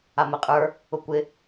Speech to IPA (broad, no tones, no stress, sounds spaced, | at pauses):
a m ɛ qʼ ə˞ | ʊ kʷ ɪ